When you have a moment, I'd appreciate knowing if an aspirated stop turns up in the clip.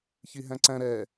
no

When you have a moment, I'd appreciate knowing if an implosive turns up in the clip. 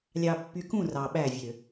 yes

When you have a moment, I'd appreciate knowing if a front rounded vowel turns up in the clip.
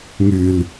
yes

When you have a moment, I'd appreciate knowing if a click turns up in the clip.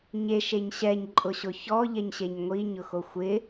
yes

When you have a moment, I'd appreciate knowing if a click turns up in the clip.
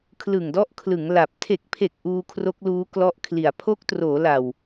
no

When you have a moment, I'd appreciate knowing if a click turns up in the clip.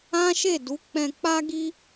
no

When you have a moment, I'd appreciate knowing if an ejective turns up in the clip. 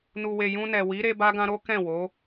no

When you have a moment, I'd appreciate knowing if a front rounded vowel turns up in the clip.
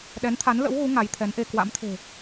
no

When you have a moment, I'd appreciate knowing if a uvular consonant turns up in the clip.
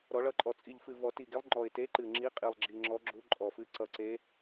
yes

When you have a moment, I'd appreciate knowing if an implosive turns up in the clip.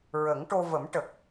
no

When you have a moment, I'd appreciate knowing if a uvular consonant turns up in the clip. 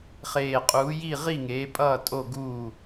yes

